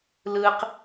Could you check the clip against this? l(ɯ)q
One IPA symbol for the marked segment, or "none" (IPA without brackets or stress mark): ɯ